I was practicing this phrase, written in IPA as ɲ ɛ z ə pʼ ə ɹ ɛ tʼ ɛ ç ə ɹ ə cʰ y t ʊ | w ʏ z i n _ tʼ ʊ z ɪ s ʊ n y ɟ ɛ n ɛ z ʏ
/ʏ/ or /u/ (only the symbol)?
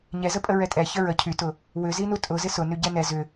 u